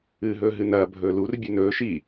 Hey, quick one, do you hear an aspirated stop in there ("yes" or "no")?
no